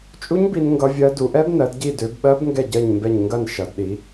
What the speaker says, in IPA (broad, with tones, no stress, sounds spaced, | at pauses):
t͡ʃʼ u˦˥ ɲ b i˦˥ n ŋ ɡ ʌ˦˥ vʲ ɜ˦˥ d u˨˦ ʔ ɛ˦˥ b n ɜ˨˦ d ɟ i˦˨ d ø˨˦ b ɓ ɜ˦˥ b ŋ ɡ ɛ˦˨ ɟ ɜ˦˨ ɲ m b ɛ˦˨ ɲ ŋ ɡ ɐ˦˨ n ʃ ʌ˨˦ d ɗ i˨˦